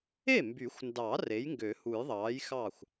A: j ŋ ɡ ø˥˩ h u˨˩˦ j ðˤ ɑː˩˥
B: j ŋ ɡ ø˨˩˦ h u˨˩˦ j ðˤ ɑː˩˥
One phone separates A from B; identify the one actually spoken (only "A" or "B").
B